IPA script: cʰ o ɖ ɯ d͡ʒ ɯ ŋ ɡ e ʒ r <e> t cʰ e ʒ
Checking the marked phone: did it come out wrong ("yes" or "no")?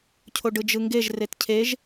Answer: no